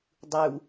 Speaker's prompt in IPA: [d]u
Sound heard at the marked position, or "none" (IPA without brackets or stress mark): dˤ